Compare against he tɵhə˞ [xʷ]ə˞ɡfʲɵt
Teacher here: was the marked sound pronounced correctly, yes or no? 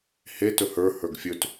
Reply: no